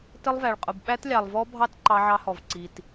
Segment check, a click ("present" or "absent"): present